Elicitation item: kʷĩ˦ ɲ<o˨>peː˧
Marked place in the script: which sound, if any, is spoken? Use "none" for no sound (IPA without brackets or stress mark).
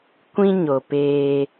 o˨